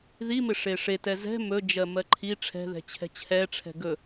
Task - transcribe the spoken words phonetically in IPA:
ðimɪ ʂeʂetɛ zɛ̤ mɵd͡ʒɜ mɜǃʰi ʈ͡ʂʰɛ̤ðɛ̤t͡ɕʰɛ̤ t͡ɕʰɛʈ͡ʂʰɛ̤ ɡɵ

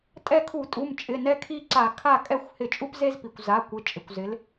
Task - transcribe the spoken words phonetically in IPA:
tʼɛ˦˨kʰu˧˩˧tʼu˩˧˩m t͡ʃʼɪ˩˧˩nɛ˦kʰi˦˨ǀa˧˩˧ kʰa˦˨kʼɛ˦˨xʷ hɪ˧˩˧t͡ʃʼu˦pze˦zpi˩kʷ za˩˧˩ kʷɪ˩˧ t͡ʃʼɪ˩kʷzɪ˩˧l

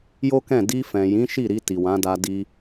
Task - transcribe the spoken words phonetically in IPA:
jo˦kɛ̃˦˨ di˧fɛ̃˨jĩ˨˦ ʃi˦˨ɾi˧ ti˨wã˨˦da˧ di˧

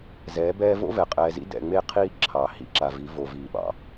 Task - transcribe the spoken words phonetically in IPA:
zɛː˨˦bɛː˦ vo̰˦vɛ˨qʼɛː˨zḭ˦ dɛ̰˨ŋ͡me˦˨qʰiː˦ ǁʰɑ˨hḭ˦ ǁa˨vi˨˦ vo˨viː˨ɓɑ̰˨

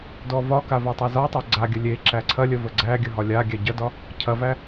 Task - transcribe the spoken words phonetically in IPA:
dɔvɒka vatˤazɒtˤa ɡ͡ǀaɡʲə lʲe ǁæǀʰɐlʲə vəɡ͡ǀæɡʲə ɦɒlʲaɡʲæ ɟɐdɒ | cʰɐvæ

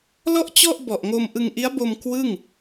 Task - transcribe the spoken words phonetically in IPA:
lɔ˥˩ʔt͡ɕɔ˥˩ʔbɔ˨˩ʔŋo˧m ʔɯ˧ŋʔi˦˥a̯bo˧m kwɯ˥˩ŋ

